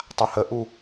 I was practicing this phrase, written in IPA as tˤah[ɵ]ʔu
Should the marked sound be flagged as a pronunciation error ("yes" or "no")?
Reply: yes